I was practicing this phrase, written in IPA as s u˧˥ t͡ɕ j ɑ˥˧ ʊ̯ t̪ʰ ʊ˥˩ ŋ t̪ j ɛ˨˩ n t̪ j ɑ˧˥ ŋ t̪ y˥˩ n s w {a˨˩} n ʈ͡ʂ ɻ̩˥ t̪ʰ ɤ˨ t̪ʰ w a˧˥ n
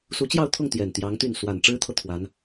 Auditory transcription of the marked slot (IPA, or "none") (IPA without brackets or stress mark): a˨˩